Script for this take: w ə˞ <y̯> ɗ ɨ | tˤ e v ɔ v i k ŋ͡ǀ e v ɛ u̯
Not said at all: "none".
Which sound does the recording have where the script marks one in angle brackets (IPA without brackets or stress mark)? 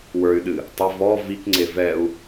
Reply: y̯